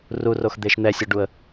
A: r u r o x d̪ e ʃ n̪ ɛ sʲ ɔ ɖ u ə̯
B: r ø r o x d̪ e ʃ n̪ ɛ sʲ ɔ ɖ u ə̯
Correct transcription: A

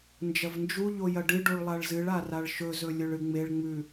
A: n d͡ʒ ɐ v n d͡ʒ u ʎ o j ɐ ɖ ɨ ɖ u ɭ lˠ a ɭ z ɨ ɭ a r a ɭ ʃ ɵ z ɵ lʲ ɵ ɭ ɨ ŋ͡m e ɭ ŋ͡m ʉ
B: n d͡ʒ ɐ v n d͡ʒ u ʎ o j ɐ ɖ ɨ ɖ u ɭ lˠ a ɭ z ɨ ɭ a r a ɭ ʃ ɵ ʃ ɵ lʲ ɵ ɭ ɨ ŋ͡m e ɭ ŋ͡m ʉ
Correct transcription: A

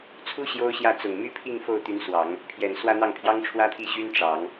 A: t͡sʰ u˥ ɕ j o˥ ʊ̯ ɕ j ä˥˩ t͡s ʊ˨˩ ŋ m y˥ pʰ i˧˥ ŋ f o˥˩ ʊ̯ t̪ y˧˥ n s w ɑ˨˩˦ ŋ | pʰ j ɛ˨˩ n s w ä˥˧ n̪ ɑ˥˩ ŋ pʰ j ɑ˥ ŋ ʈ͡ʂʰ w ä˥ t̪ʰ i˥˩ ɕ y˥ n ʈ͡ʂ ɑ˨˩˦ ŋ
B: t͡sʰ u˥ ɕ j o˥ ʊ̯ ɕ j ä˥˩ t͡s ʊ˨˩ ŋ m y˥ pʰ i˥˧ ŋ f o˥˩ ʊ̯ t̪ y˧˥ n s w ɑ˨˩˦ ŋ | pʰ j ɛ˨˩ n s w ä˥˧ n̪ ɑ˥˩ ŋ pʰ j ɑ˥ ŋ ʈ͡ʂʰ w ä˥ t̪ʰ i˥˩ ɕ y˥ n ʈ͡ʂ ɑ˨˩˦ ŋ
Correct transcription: B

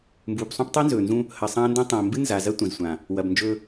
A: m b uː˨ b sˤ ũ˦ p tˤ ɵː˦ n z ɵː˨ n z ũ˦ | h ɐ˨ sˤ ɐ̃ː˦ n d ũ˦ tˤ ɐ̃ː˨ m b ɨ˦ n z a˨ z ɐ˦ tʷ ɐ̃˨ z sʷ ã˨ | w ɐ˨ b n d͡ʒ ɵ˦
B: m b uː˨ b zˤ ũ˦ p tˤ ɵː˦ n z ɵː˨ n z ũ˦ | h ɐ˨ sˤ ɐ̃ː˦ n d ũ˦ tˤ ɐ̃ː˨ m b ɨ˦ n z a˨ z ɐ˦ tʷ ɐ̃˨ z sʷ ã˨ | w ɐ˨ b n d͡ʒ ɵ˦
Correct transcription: A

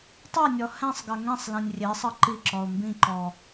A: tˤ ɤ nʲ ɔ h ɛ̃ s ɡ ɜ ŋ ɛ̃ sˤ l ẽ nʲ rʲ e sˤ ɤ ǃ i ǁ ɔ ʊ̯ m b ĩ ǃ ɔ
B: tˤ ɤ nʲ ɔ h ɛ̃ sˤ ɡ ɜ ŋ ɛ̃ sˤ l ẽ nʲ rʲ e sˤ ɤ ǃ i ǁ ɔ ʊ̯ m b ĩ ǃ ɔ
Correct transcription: B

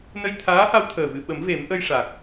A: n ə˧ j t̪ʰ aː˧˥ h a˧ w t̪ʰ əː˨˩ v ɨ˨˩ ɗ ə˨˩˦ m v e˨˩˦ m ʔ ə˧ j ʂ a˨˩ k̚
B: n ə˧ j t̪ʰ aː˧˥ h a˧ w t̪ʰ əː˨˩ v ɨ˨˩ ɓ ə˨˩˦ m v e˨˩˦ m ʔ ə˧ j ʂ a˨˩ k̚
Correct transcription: B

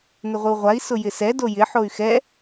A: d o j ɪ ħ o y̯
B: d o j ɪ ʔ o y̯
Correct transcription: A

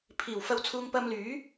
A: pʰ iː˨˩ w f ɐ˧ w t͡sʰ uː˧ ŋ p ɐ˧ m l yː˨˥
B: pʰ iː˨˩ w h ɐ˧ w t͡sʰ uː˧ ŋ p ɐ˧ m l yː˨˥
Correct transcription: A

